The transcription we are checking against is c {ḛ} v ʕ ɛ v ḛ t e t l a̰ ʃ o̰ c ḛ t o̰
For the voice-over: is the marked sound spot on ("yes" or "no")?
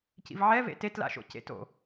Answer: no